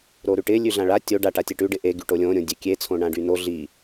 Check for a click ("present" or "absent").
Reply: absent